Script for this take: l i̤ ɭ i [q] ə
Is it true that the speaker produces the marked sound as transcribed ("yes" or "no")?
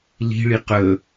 yes